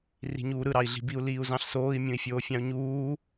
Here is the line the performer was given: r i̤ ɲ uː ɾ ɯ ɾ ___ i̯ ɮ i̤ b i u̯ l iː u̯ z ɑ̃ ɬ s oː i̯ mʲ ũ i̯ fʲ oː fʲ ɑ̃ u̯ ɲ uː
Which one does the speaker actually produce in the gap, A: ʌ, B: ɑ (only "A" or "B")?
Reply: B